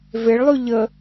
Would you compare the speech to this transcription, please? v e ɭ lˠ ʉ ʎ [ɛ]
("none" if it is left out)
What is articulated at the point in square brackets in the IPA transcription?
ə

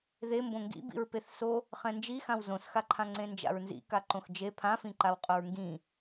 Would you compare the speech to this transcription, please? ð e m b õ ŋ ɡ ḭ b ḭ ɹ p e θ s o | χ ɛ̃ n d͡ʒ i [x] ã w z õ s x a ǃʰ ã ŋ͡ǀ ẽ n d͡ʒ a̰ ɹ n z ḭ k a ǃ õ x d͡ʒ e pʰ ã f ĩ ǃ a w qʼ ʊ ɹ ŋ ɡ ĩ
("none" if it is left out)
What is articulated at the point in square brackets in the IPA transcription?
x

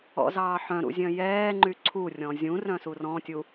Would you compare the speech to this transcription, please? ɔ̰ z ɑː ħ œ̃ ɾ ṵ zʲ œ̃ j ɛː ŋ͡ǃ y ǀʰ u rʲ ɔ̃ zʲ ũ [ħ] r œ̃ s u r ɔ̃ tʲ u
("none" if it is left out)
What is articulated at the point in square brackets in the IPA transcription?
none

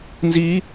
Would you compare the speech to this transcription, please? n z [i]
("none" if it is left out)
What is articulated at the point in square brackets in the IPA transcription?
i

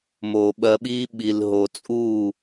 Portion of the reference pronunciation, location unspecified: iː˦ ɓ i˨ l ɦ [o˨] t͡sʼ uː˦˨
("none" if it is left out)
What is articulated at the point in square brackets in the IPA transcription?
o˨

